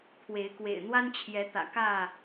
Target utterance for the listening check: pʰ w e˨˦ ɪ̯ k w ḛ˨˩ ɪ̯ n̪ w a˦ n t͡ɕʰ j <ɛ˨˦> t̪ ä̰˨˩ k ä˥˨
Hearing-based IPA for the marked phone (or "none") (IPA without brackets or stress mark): ɛ˨˦